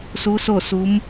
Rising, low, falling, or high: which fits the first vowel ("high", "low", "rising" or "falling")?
rising